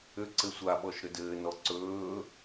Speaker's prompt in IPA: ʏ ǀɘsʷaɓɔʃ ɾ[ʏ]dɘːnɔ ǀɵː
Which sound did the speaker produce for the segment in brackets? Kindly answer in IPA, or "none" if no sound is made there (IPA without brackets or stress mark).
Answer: ʏ